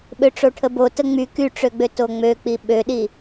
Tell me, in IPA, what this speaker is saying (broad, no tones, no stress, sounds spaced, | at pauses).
ɓ ø ʈ͡ʂ o ʈʰ ə b o t ə ŋ͡m y k y ʈ͡ʂ ø ɡ͡b ø t o ŋ͡m ø k͡p i ɓ ø ɗ i